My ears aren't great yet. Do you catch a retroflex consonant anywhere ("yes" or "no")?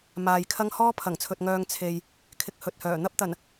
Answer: no